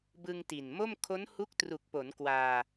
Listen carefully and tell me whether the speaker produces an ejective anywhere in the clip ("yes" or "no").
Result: no